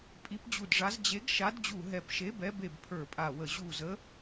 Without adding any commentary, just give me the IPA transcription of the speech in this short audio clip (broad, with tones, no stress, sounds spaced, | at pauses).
pʼ i˨˥ p d͡ʑ u˧˩ d ʐ a˨˥ z d͡ʑ e˨˥ ɡ ʃ a˨˥ d d͡ʑ u˧˩ ɦ ɛ˧˩ p ʃ e˨˥ b ɛ˨˥ b e˧˩ b pʰ ə˞˧˩ pʼ a˧˩ w ə˧˩ ʑ u˧˩ z ə˨˥